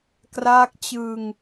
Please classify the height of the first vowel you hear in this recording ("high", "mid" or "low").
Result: low